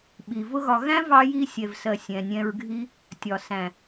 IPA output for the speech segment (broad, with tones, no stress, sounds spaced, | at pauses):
ɓ i˨ v ʊ˦ ɣ ɒ˧ ɣ æ̃˦ v ɑ˧ j i˧ sʲ ɛ˨ v s ɜ˨ sʲ ɛ̃˨ nʲ ɛ̃˧ ɹ ɡʱ i˦ | tʲ ɒ˨ s æ̃˨